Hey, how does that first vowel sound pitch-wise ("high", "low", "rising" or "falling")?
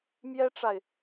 high